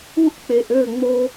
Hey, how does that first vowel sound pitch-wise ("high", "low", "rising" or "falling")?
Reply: high